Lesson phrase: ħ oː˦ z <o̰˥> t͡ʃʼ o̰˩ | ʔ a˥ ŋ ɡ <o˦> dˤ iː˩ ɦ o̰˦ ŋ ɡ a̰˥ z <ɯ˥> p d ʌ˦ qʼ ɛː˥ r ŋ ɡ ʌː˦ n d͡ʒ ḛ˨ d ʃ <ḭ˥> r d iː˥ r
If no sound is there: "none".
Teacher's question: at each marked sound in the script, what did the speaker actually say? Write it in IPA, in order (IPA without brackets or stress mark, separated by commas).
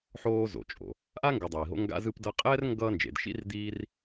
o̰˩, o˨, ɯ˥, ḭ˥